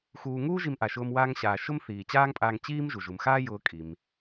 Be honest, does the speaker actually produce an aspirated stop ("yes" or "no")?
no